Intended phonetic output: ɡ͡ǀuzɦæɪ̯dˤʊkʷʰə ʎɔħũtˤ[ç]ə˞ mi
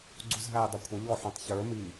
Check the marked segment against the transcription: correct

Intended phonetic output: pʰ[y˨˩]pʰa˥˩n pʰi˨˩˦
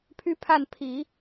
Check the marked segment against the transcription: incorrect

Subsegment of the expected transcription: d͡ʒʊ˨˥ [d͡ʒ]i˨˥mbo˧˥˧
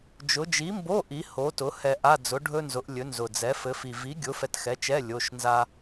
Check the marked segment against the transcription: correct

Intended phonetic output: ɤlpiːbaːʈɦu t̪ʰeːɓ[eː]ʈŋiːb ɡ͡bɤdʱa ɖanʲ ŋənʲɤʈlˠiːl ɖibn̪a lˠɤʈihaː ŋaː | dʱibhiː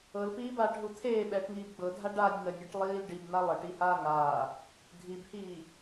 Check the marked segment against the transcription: incorrect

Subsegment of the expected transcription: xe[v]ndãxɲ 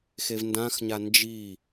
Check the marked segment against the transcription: correct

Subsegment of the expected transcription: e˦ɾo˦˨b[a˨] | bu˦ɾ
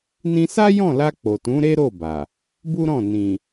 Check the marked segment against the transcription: correct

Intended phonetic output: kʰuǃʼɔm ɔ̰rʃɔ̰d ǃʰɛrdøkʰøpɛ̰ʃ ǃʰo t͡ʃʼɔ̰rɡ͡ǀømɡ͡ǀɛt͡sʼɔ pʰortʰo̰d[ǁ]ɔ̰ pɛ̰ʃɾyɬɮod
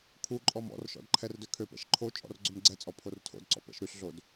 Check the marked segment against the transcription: incorrect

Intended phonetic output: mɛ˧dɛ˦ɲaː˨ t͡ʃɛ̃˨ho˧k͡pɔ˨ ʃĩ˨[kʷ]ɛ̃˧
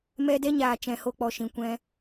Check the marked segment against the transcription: correct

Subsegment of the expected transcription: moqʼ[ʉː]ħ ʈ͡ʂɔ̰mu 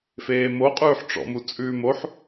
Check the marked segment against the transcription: correct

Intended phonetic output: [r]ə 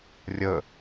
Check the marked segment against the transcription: incorrect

